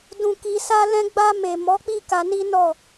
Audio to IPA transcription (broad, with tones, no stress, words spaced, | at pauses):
dũ˨ki˨ sa˧lɛ̃˧ɡ͡ba˧ me˨mɔ˨˦k͡pi˦˨ ka˧ni˦nɔ˦˨